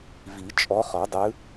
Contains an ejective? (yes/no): yes